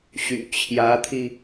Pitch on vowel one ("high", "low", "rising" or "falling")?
low